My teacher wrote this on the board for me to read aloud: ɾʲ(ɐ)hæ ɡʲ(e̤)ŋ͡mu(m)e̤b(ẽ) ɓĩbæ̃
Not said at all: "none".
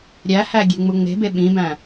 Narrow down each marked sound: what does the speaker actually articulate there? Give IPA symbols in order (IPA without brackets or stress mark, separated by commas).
æ, e̤, ŋ͡m, e